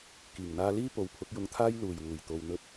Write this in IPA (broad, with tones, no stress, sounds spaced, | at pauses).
k iː˨˩ ŋ n̪ aː˧ l iː˥ p o˨˧ w pʰ ʊ˨˥ k̚ j ʊ˧ ŋ t̪ʰ aː˥ j l uː˨˩ j w uː˨˩ j t̪ o˨ w n̪ ɵ˧ t̚